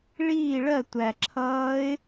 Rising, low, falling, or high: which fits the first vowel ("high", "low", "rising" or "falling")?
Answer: falling